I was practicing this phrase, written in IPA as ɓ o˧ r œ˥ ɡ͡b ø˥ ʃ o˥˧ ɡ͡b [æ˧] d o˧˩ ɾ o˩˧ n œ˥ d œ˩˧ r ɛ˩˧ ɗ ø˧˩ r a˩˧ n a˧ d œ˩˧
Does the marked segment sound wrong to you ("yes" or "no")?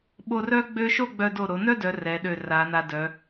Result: yes